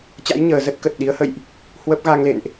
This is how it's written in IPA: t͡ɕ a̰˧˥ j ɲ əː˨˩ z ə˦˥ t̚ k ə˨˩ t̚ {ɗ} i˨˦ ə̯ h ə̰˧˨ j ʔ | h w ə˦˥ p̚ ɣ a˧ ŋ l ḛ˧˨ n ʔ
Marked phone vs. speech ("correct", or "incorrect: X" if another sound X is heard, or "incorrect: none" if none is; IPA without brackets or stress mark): correct